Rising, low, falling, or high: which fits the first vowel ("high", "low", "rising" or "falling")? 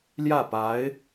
falling